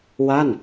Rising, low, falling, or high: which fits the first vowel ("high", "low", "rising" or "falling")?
falling